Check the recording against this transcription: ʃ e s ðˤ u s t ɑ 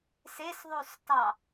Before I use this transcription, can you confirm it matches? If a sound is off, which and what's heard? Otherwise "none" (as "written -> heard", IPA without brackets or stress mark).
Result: ʃ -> s